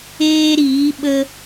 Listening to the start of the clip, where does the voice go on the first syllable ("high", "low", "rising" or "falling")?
high